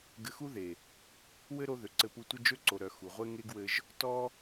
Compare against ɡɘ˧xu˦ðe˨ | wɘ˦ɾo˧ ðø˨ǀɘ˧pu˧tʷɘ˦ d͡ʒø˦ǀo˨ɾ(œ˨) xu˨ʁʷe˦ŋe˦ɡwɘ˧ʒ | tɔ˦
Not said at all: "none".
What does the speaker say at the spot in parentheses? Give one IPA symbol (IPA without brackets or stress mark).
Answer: œ˨